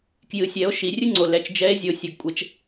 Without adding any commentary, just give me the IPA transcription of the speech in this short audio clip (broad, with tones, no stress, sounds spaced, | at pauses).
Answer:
k j ɨ˨˦ sʲ ɛ˨˦ o̯ ʃ i˨˩˦ rʲ ɨ˥ ŋ͡ǀ o˨ l ɛ˨˦ t͡ʃ d͡ʒ ɛ˨˦ e̯ zʲ o˨ sʲ ɐ˨ ɡ kʷʼ ɛ˨˦ t͡ʃ